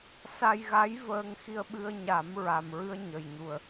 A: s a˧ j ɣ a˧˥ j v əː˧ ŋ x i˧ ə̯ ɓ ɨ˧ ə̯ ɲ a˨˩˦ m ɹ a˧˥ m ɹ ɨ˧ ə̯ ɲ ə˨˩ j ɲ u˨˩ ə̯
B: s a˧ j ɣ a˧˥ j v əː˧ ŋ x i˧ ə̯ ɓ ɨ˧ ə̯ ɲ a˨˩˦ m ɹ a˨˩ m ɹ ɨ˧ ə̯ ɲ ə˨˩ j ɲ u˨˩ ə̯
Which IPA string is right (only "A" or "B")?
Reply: B